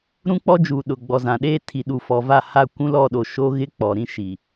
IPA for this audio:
ɾ ũ˦ k͡p ɔ˦ d͡ʒ uː˨ ɗ ʊ˨ ɡ͡b ɔ˨ z ã˨ ɗ eː˦ tʰ i˨ ɗ u˨ f ɔ˨ v a˦˨ h a˦˨ kʷ ũ˦ l ɔ˦˨ ɗ o˨ ʃ o˦ ɣ ɪ˦ k͡p ɔ˨ ɾ ĩ˦ ʃ i˨

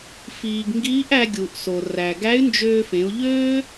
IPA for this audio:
f iː˩ ɡ ŋ ɡ iː˧˥ ʔ æ˧ ɡʲ u˩ ʔ s o˩ r æ˩ ɡ æ˧˥ y̯ n d͡ʒ øː˧ f ẽ˩˧ u̯ ʎ øː˥

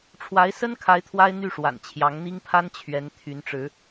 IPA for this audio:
ʈ͡ʂʰ w a˨˦ ɪ̯ s ə˦ n kʰ a˨˦ ɪ̯ t̪ʰ w a˦ ɪ̯ n̪ y˥˨ ʂ w a̰˨˩ n t͡ɕʰ j ɑ˨˦ ŋ n̪ i˦ ŋ pʰ a˦ n t͡ɕʰ ɥ ɛ˨˦ n t̪ʰ y˨˦ n ʈ͡ʂ ɻ̩˨˦

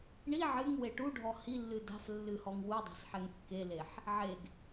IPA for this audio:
ɳ i ʕ ɨ ŋ w e ʈ u ɖʱ ɔ h i lː ɨ d a̤ f lː ɨ h ɔ ŋ w u dˤ a̤ s ħ ɛ ŋ kː e l e ħ | ʕ e ɡ

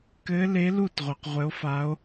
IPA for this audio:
k ɘ˧˥ l e˧˥ l u˥˩ t ʁʷ ɛ˧˩˧ q ʁʷ ɘ˧˥ o̯ f a˧˥ o̯

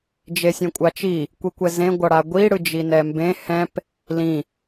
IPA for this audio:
d͡ʒ e sʲ ẽ kʷʼ a t͡ʃ i | kʷ i kʷ ɛ z ẽ ɡʷ ʌ ɽ a ɡʷ i ɽ ɯ d͡ʒ i n ɛ m b ẽ h ɛ̃ p | l ĩ

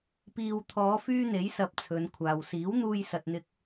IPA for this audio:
p iː˨ w t̪ʰ ɔː˨˧ f yː˥ n̪ e˨˥ j s ɐ˨ p̚ t͡sʰ ɵ˨˧ n kʷʰ aː˨ w s iː˨˥ w n̪ uː˧ j s ɐ˨ t̚ n̪ ɪ˧ k̚

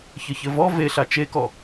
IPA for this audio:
ç ɘ ç ɘ v ɔ v e ɬ a t͡ʃ e k ɔ

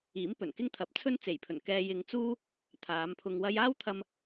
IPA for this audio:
iː˨˥ m p ɵ˨˩ n k ɪ˥ ŋ t̪ʰ ɐ˨ p̚ t͡sʰ ɵ˥ n t͡s e˨˩ j pʰ ɵ˨˩ n k ɛː˧ j ɪ˧ ŋ t͡s uː˥ | t̪ʰ aː˨˧ m pʰ ʊ˧ ŋ w ɐ˥ j aː˥ w t̪ʰ ɐ˧ m

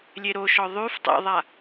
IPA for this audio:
lʲ e ɾ o ʃ ɔ ðˤ y f tˤ ḛ ðˤ a

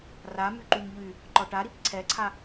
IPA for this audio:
r a m y ǃ y m ʎ y | ǃ ɔ ʈ a ɾ i p ǀʰ ɛ ǀʰ a

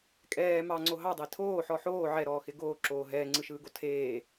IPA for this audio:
kʼ ɛː m ɑ ŋ͡ǀ o ɦ ɑ dˤ e tʰ oː ħ ɔ ħ oː ʕ ɛ ɾ ɔː x ɪ ɡ oː ǁ oː ɦ ɛː ŋ͡ǀ ɯ ʃ ɯː ɡ o tʰ eː

